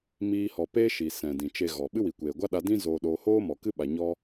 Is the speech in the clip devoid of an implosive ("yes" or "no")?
no